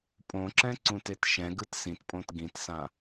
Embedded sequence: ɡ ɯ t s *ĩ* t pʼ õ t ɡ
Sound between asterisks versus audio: correct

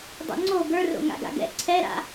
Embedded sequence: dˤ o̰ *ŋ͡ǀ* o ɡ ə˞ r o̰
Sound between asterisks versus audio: correct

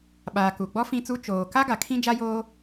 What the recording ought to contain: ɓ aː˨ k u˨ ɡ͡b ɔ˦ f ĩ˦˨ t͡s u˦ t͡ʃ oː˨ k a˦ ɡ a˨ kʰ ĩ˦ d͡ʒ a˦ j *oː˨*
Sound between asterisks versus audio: incorrect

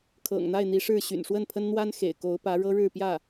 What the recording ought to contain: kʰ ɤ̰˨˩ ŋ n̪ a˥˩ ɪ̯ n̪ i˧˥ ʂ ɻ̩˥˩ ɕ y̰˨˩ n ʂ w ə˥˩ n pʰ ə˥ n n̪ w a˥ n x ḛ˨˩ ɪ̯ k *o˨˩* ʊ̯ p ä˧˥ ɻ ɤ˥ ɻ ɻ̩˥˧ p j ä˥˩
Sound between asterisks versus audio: incorrect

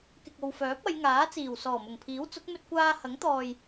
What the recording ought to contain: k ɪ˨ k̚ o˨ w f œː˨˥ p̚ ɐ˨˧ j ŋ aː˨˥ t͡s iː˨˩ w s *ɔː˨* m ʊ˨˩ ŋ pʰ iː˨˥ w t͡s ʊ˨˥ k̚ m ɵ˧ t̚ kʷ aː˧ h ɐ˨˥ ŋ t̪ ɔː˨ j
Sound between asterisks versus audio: incorrect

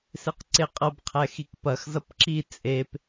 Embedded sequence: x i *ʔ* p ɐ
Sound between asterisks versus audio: incorrect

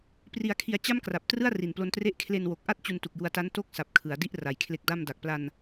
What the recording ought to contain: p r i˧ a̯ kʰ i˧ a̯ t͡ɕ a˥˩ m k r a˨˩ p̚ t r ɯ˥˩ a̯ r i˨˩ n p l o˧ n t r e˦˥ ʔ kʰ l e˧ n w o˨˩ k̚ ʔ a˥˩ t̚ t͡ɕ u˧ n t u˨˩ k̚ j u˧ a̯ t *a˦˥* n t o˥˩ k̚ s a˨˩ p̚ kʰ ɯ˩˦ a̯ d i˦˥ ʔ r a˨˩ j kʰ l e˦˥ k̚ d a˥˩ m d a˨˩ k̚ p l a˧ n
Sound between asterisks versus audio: correct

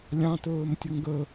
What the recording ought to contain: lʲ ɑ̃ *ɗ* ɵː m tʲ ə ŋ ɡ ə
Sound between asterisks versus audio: incorrect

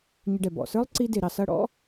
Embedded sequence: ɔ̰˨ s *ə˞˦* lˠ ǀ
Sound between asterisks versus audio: correct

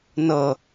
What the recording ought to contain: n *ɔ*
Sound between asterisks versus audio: incorrect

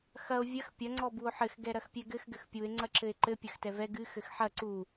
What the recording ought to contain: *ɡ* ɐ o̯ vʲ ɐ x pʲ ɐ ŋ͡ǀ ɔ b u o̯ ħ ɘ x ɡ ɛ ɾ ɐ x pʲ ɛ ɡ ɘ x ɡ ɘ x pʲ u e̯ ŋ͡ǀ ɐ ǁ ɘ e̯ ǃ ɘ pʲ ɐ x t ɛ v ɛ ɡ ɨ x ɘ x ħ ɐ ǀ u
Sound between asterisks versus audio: incorrect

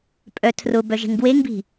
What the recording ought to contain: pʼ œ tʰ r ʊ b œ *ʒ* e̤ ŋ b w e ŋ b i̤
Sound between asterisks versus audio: correct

